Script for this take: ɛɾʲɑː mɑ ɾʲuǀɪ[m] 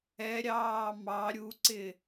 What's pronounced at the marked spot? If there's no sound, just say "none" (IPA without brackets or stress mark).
none